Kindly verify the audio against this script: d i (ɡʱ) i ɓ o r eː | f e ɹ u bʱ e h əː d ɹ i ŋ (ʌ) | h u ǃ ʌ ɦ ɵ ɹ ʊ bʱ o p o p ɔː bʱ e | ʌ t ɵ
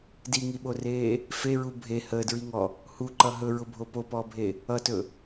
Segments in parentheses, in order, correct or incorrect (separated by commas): incorrect, incorrect